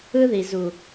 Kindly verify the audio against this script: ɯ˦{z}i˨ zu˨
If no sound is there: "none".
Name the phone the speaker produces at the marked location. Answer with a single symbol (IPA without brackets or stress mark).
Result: ð